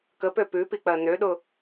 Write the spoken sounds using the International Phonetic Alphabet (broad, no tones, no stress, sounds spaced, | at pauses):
k ə p ø p ʉ p i k͡p ɜ n ø ɗ ʊ